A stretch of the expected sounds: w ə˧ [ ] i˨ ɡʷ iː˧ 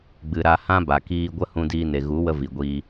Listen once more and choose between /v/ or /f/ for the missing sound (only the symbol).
v